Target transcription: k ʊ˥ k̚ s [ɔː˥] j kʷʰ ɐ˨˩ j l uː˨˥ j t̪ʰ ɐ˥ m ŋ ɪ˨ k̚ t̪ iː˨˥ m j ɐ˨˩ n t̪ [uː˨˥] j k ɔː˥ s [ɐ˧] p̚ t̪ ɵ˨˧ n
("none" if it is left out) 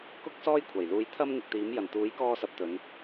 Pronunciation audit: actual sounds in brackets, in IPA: ɔː˥, uː˨˥, ɐ˧

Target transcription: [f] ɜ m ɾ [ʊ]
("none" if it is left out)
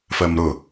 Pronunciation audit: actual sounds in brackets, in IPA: f, ʊ

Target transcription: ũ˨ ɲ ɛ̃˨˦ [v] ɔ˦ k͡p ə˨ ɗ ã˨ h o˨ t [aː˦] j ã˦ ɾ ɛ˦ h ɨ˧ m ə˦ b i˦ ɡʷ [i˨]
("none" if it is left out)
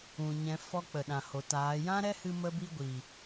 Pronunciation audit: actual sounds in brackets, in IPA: f, aː˨˦, i˨

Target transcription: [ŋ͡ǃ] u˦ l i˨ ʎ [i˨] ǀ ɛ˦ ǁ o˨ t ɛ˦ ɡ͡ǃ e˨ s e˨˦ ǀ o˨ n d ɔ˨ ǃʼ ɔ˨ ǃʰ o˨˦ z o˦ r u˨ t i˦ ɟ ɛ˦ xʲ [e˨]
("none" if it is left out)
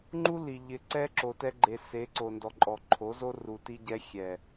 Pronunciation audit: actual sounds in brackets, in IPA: ŋ͡ǃ, ɪ˨, ɛ˨

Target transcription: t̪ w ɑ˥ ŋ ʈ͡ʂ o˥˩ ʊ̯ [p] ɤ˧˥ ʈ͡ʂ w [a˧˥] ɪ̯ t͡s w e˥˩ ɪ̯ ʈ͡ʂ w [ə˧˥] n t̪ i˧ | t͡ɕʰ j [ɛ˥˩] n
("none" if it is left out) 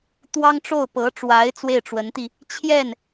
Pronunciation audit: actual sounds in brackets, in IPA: p, a˧˥, ə˧˥, ɛ˥˩

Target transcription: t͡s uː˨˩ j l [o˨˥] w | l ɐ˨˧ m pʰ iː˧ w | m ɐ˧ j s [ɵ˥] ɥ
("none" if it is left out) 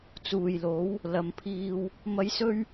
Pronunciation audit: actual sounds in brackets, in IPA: o˨˥, ɵ˥

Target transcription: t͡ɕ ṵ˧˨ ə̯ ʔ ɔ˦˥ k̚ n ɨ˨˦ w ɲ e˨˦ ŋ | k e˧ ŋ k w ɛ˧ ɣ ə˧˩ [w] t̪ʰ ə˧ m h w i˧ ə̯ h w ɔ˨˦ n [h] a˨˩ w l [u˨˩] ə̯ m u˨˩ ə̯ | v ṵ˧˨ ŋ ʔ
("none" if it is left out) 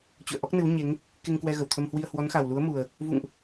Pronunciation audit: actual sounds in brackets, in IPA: w, x, u˨˦

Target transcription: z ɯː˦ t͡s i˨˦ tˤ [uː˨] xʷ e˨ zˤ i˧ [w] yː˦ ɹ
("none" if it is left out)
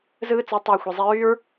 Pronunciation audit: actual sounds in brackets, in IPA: yː˨, ɹ

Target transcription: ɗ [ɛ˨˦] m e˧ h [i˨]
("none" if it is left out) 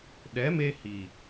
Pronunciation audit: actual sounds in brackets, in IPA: ɛ˨˦, i˨

